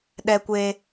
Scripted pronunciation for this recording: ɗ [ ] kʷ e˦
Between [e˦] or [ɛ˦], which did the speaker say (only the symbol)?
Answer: ɛ˦